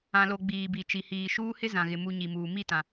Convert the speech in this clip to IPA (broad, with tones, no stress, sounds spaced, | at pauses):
ã˨ l o˨ ɡ͡b iː˨ b i˨ t͡ʃ i˨ h iː˨ ʃ uː˦ h ɪ˦ z ã˨ ɣ ɪ˨ m u˨ ɲ i˨ m uː˨ m i˦˨ t ã˨